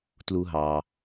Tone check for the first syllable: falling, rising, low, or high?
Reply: low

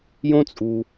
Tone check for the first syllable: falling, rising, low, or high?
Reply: high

